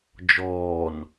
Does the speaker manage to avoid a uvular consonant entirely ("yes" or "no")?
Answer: yes